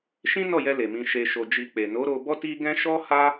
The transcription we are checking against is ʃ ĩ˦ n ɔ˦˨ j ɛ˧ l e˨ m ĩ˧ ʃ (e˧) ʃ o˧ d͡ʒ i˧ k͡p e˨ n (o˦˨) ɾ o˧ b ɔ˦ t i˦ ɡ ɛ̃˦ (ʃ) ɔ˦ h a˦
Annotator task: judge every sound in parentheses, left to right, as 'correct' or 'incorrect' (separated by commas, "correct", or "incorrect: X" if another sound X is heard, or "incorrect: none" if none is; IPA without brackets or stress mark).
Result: correct, incorrect: o˨˦, correct